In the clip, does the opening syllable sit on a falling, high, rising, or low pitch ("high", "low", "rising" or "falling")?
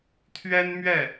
high